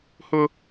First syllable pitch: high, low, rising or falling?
high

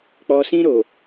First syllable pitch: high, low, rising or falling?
low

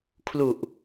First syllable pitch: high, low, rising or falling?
low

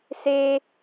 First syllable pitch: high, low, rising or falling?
high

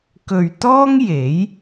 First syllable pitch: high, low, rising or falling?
low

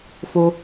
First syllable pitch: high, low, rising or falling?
high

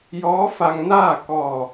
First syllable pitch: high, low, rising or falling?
rising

